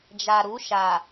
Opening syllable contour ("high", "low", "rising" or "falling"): low